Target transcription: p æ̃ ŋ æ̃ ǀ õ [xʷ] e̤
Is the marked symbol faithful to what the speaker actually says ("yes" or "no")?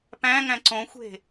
yes